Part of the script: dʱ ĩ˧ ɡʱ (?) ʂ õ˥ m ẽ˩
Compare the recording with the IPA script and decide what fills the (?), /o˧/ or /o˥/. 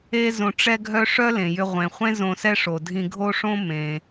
o˥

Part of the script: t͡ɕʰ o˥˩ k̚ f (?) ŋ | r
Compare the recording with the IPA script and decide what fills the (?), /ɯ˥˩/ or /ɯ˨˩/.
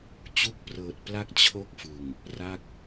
ɯ˨˩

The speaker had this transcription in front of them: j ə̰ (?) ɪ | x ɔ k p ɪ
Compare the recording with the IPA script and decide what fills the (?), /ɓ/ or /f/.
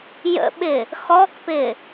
ɓ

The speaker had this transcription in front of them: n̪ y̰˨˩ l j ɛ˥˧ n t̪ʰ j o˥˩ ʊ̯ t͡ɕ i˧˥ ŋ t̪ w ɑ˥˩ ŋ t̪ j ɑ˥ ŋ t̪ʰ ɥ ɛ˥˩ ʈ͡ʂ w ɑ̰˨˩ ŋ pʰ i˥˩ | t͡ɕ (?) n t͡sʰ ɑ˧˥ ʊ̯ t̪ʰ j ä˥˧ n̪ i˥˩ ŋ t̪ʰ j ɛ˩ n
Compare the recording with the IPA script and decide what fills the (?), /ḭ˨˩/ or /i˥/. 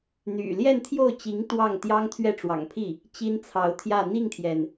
i˥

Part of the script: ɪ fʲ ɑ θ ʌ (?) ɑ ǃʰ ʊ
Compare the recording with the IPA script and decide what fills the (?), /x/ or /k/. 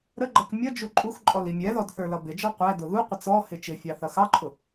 x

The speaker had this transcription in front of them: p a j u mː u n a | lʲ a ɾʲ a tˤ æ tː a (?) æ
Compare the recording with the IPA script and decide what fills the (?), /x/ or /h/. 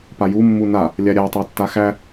x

